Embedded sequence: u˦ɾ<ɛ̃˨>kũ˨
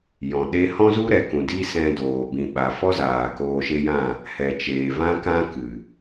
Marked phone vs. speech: incorrect: ɛ˨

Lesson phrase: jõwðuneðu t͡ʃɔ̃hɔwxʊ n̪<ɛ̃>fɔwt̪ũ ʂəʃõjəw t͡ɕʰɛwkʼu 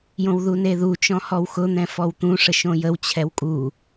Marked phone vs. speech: correct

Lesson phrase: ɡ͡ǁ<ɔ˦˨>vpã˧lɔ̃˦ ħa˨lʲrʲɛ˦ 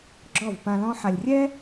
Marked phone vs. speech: correct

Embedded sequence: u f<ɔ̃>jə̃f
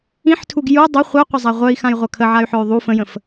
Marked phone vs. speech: incorrect: ə̃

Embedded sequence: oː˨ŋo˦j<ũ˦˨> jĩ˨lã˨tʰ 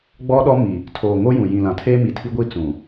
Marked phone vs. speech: incorrect: ũ˨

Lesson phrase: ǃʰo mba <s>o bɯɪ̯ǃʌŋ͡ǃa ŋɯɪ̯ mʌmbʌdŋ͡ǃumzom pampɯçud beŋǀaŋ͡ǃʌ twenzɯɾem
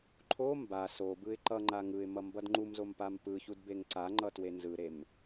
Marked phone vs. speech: correct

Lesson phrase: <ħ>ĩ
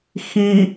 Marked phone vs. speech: incorrect: x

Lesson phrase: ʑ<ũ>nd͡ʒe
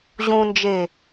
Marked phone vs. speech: correct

